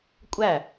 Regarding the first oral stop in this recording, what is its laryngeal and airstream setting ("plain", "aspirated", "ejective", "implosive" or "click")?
ejective